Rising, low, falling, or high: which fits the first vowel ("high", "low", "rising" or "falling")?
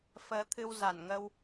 rising